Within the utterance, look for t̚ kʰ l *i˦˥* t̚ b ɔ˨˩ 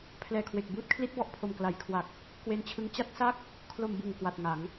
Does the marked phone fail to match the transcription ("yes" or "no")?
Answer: no